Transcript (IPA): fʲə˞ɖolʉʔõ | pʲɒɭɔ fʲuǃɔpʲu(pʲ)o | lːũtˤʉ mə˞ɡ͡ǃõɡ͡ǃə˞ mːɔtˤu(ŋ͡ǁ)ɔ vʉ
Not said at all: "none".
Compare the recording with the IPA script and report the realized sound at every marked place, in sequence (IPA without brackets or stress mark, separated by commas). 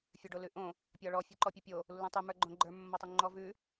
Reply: pʲ, ŋ͡ǃ